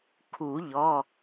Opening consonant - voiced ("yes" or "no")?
no